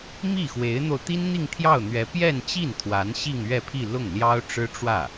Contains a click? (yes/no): no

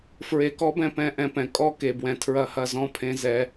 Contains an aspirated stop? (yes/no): yes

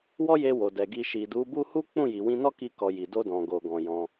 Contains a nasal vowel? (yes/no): yes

